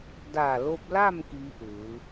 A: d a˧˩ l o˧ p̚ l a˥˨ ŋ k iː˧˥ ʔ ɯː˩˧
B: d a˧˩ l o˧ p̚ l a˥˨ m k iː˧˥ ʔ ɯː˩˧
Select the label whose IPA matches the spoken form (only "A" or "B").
B